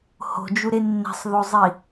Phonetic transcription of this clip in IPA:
h o̤ d͡ʒ u ɾ e nː æ̤ sˤ ð o zˤ i

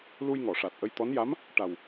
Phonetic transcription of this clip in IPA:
l u˧ j ŋ ɔ˨˩˨ ʂ a˨˩ t̚ ʔ ə˧ j t̪ ɔ˧˥ n j a˧˥ m | ʈ a˨˩ w

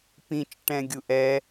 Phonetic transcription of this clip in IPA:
p ĩ t͡ʃ ʈ ɛ̃ ɡʲ u ʔ ɛ

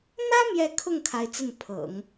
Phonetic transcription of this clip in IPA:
n̪ ä˥ m j ɛ˥˧ kʰ ʊ˥˩ ŋ kʰ a˧˥ ɪ̯ t͡s ə˥˩ n pʰ ɤ̰˨˩˦ ŋ

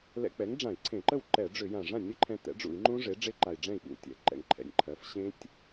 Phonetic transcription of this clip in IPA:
l ɛ̰˧ k͡p ɛ˩˥ ŋ ɖ͡ʐ ã˧˩˧ i̯ ǀʰ ẽ˧˩˧ ǃ ə˥˩ w ǃ ɛ˧˩˧ ɖ͡ʐ ʏ˧˩˧ j ã˨˩ ʐ ã˥˩ nʲ ə˦˥ ǃʰ ɛ̃˧ t ɛ̰˩˥ ɖ͡ʐ ṵ˧˩˧ i̯ ŋ͡ǃ ũ˦˥ ʐ e˩˥ ɖ͡ʐ e˦˥ ǃ a˨˩ i̯ ɖ͡ʐ ɛ̃˥˩ i̯ ɓ ṵ˧˩˧ tʲ ɛ̰˩˥ ǃ ɛ̰˨˩ ŋ ǃʰ ɛ̰˨˩ nʲ ǃʰ ɜ˩˥ f ɕ ẽ˦˥ tʲ

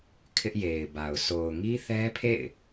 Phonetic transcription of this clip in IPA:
kʰ ɪ˦ ʔ j e˨ ɪ̯ b a˨ ʊ̯ s o˨ ʊ̯ ŋ i˦ θ ɛ˦ pʰ ḛ˦˨ ɪ̯

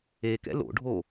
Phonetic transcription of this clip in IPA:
e k ɛ̰ l o̰ ɖʱ o

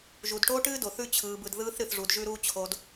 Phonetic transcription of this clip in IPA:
ʒ u˨ d ʈ oː˦ ʈ ɨː˦ d o˨ θ ʉ˦ t͡ɕʰ ɯː˨ b ɯ˨ d ð ɯː˦ θ ɾ ɨ˨ θ ʐ u˨ d ʒ ʉ˦ ɾ uː˦ t͡ɕʰ o˨ d

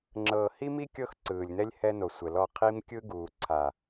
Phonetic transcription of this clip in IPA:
ŋ͡ǁ ɤː˨ h i˦ m i˦ kʲ ɤ˦ x ǀ ɯː˨ lʲ n ɛ˦ lʲ h ɛ˦ n o˨ sʷ ɛ˨ l ɔ˦˨ qʰ i˦ m kʲ ɯ˦ ɡ uː˨ ǀʰ a˨

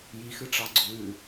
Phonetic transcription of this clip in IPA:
j i x ɨ ʈ͡ʂ ɑ ɡ͡ǀ ʉ

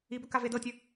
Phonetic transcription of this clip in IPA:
i b ɵ k a v e d ɤ tʲ ə

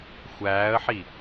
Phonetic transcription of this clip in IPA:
xʷ æː ə̯ ħ i

